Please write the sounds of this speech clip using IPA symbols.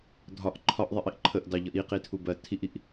dʱɒʔ ǃʰɒʔðˤiʔiʔ ǃʰəʔdɑʎʌʔ iqitʰubɜ tʰiʔiʔ

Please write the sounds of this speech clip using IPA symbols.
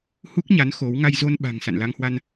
hu˦˥k̚ɲa˨˦n xo˨˦w ŋa˧jzo˧nɓa̤˨˩ŋ sa̰˧˨nla˧ŋhwa˧n

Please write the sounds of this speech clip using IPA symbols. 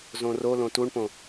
zõrolõ tuɳpõ

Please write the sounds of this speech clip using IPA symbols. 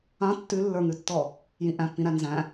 ã tːʉlːə˞ŋʉtːɔ | jĩʔæ̃pːĩɾæ nzæ̃

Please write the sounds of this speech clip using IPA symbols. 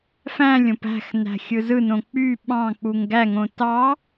fæ̃lʲõp æ̤x næ̤xʲɯzɯnõ k͡py ɓɑ̃k͡puŋ ɡæŋõ tɑ

